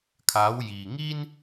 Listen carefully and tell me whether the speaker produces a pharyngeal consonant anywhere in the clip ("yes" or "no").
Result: no